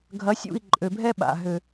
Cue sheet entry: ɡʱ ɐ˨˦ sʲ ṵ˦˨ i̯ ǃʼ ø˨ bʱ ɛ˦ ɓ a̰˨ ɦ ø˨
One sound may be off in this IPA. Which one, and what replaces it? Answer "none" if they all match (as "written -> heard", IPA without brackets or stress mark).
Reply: none